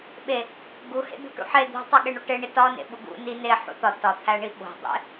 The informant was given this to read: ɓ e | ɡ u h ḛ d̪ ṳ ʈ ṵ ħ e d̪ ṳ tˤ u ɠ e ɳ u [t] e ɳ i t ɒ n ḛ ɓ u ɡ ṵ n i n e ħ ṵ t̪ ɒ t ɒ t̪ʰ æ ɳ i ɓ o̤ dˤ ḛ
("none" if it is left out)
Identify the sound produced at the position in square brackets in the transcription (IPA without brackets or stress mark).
ʈ